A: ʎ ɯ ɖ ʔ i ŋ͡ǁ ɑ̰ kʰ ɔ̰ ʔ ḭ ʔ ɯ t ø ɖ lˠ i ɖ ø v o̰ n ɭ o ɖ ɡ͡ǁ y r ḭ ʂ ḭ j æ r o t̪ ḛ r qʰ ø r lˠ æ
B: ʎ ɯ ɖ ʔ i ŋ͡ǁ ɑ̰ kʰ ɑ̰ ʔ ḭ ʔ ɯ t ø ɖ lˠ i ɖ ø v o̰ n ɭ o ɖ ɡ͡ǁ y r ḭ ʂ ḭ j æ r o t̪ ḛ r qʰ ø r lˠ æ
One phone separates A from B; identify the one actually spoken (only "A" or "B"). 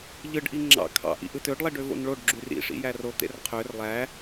B